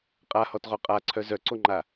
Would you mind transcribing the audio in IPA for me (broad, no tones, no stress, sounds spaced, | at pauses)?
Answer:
qʼ a h ɔ t ʁ o qʼ a ǀʰ œ z œ ǀ o ŋ͡ǃ a